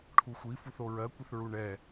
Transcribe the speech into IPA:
ʈʰ u xʷ i f u θ o ɹ ɜ kʷ ɘ θ ɹ u ɳ ɛ

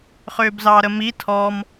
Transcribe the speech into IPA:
χ ʏː b z ɑː ɾ ə m i tʰ ɔ m

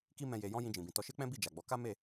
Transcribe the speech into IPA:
k i˦ m ɛ̃˧ j e˧ j ɔ̃˦ j ĩ˧ d͡ʒ ĩ˨ b ĩ˨ t ɔ˧ ʃ e˦ k͡p ɛ̃˦ b i˦˨ d͡ʒ a˨ ɡ͡b ɔ˨˦ k a˦ m e˦˨

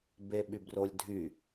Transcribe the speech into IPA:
b e ɓ y b r o lʲ dʱ y

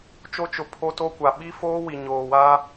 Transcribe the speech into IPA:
t͡ʃ o˦ t͡ʃ ʊ˨ pʰ o˦ t o˦ kʷ a˨ ɓ i˦ f oː˦ w i˨ ɲ oː˨ w aː˦

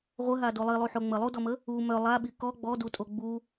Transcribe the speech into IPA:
ʁʷ ə ɦ a d o lˠ i lˠ u ħ o ŋ͡m ə lˠ u d ɔ m ə | u m œ lˠ a ɓ i k ɔ ɡ͡b ɔ d u tʼ o ɡ͡b u

